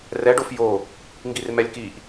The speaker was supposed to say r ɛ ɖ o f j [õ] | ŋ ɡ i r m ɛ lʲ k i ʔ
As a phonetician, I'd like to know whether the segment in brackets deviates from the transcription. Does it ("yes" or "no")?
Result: yes